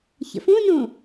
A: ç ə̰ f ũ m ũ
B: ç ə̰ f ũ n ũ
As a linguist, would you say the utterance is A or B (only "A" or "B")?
B